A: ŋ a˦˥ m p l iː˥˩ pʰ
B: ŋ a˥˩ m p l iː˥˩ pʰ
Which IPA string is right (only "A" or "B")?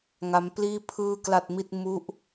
A